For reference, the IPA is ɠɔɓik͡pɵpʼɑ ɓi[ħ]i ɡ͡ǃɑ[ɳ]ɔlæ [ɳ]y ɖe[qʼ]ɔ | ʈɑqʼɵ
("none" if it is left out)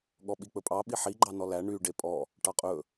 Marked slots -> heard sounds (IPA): ħ, n, ɳ, pʼ

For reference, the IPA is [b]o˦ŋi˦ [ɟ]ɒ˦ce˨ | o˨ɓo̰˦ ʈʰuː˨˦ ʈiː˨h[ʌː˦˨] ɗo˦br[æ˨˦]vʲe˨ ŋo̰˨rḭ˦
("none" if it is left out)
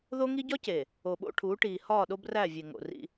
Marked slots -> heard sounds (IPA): ð, ɟ, ɒː˦˨, æ˦˨

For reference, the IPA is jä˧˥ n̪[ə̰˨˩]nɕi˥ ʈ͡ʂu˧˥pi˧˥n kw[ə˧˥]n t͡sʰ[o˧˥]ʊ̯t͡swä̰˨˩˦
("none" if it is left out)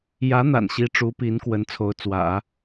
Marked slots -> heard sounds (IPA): a̰˨˩, ə˧˥, o˧˥

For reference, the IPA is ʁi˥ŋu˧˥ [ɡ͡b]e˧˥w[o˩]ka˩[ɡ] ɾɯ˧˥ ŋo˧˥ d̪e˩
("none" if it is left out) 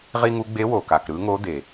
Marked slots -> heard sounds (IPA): ɡ͡b, o˩, k

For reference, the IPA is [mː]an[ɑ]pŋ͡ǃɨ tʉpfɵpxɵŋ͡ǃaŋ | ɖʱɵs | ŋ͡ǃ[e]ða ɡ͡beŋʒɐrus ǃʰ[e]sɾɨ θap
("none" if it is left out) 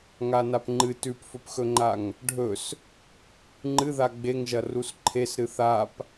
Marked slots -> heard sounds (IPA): ŋ, a, ɨ, e

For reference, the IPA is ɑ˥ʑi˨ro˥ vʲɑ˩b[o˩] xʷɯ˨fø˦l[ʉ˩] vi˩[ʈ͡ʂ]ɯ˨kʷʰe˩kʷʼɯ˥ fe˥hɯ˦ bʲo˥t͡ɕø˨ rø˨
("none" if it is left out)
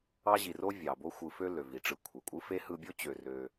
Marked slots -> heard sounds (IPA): o˦, ø˩, ʈ͡ʂ

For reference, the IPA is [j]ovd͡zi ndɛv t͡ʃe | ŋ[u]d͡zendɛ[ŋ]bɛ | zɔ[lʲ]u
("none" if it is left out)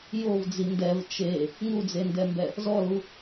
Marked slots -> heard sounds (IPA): j, u, m, l

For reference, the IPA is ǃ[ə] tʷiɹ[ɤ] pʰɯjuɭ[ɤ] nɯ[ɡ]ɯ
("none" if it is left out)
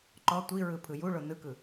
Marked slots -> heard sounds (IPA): ɔ, ɯ, o, k

